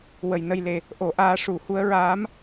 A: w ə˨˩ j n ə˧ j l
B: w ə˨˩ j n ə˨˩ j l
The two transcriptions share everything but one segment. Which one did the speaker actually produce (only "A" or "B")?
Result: A